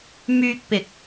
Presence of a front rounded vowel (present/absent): present